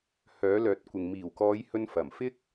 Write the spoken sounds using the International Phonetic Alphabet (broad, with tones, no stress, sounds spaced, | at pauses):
h œː˨˥ l œː˨˥ t̚ kʷ ɪ˨ ŋ m iː˨˩ w k ɔː˨˧ j h ɵ˧ n f ɐ˨˩ m f ɪ˥ k̚